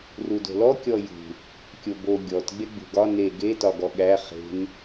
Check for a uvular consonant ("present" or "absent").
present